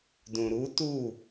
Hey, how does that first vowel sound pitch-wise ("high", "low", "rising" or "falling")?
low